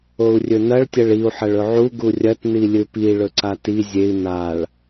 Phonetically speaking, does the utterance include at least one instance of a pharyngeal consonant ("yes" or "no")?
yes